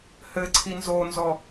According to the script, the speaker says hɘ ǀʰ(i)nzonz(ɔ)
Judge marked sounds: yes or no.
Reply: yes, yes

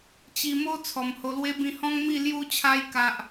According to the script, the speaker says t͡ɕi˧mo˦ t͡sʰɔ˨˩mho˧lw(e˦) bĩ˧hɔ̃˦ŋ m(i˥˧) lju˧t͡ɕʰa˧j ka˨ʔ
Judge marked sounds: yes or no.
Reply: yes, yes

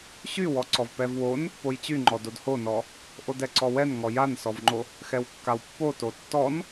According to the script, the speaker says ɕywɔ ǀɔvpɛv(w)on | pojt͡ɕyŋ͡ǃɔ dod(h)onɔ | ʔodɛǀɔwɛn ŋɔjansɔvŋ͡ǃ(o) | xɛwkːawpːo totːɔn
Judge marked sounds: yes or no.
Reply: yes, yes, yes

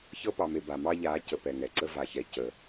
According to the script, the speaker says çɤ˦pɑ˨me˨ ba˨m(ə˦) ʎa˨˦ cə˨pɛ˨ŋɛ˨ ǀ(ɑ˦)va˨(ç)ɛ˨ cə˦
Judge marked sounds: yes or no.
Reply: no, no, yes

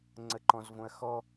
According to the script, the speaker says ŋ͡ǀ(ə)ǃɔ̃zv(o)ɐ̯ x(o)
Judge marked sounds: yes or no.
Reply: yes, no, no

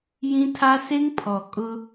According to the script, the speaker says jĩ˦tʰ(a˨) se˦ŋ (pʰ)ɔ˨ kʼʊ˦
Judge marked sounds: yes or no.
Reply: no, yes

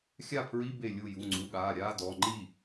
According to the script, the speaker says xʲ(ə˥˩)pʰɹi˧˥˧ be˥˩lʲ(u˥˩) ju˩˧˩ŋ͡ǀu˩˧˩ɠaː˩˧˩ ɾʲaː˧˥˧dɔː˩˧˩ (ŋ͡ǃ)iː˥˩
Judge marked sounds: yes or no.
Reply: no, yes, yes

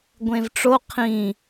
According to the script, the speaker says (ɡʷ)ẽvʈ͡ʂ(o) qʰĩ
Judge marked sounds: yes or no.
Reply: yes, yes

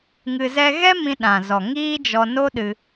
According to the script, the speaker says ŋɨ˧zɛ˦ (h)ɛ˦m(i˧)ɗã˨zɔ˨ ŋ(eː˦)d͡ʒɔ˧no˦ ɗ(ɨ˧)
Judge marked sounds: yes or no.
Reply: no, no, no, yes

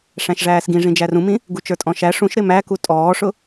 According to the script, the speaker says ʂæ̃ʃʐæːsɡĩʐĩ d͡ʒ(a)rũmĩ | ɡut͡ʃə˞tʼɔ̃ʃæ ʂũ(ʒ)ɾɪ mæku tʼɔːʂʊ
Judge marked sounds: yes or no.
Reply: no, no

